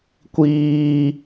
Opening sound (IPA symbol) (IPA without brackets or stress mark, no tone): kʷ